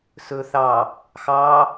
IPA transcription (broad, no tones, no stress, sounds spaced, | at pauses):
s ɵ θ ɑ | x ɑ